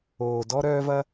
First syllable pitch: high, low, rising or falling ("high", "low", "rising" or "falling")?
low